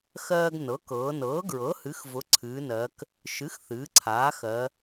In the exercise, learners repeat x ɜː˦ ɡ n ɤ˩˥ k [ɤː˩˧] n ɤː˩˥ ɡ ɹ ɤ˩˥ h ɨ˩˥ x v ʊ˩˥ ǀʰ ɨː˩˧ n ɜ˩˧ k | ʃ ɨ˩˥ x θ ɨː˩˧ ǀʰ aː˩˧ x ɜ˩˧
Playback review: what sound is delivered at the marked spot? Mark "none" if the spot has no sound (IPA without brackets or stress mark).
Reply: ɤː˩˧